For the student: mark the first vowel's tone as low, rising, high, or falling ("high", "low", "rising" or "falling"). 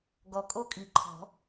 low